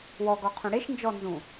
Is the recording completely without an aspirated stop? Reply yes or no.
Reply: no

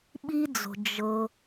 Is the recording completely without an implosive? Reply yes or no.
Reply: no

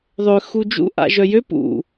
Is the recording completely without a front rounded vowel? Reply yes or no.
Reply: no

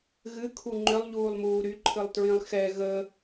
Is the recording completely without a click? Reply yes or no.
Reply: no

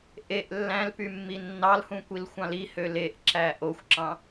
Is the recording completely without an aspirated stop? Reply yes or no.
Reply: yes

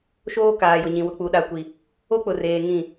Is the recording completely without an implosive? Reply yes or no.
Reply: no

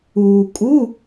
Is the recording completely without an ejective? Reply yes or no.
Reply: no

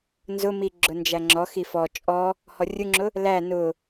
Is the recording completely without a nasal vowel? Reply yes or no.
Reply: yes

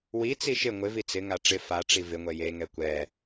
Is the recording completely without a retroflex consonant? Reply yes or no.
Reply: no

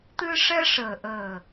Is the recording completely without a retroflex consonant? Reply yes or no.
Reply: no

